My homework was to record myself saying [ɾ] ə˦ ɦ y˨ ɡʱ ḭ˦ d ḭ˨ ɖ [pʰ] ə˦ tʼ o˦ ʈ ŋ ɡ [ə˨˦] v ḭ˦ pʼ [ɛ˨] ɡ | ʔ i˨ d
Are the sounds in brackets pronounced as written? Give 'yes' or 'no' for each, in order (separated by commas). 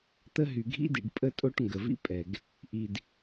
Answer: no, no, no, yes